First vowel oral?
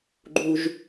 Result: yes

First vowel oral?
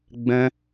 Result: no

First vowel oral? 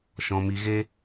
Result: no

